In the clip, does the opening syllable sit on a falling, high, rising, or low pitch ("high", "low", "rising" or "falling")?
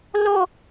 high